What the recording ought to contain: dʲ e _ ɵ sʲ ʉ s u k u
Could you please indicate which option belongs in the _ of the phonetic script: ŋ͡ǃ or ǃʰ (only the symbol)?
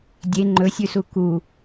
ŋ͡ǃ